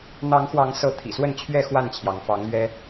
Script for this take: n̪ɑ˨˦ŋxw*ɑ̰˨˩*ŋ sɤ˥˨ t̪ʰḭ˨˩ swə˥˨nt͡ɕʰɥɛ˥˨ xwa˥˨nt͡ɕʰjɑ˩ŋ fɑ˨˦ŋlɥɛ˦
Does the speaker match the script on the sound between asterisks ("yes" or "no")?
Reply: no